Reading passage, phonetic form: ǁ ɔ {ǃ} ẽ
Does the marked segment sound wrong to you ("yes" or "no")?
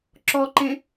no